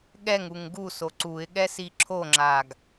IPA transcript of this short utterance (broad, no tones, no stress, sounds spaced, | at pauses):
ɠ ɛ ŋ u ŋ ɡ u s o ǀ u ɪ̯ ɠ ɛ s i ǁʰ o ŋ͡ǁ a ɡ